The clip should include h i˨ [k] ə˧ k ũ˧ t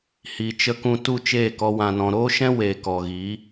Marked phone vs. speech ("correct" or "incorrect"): incorrect